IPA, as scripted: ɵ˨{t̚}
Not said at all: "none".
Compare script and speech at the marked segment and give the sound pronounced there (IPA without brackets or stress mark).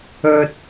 t̚